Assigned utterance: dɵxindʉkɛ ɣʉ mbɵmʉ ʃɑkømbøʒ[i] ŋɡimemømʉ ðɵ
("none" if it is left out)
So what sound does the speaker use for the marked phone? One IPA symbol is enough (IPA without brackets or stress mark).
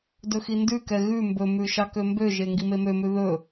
e